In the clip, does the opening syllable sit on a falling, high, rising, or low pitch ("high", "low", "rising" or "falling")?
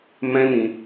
high